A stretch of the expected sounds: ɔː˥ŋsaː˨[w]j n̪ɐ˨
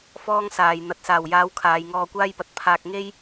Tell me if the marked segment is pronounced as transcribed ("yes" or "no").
no